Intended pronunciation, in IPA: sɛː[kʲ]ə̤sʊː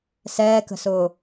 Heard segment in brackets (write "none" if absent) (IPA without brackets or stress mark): k